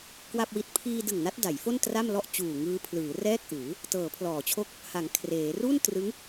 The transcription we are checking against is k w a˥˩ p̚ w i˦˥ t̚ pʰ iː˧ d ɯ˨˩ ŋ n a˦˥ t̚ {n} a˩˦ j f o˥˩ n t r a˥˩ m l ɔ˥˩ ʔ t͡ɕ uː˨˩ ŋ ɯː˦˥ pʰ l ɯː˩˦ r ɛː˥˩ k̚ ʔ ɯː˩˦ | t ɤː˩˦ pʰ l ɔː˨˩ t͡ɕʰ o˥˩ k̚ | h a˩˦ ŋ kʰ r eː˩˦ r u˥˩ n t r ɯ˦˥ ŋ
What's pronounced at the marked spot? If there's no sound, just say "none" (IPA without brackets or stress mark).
d